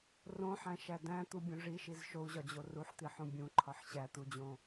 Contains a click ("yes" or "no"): yes